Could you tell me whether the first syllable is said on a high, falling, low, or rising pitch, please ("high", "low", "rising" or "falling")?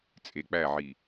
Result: low